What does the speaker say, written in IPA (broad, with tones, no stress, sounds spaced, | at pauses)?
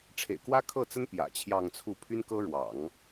ʈ͡ʂʰ ḛ˨˩ ɪ̯ k w ä˥ kʰ ɤ˥˩ t͡s ə˥ n p j ä̰˨˩ t͡ɕʰ j ɑ˥˧ ŋ t͡sʰ u˥˩ pʰ y˥ n k ɤ˥ ɻ w ɑ̰˨˩˦ ŋ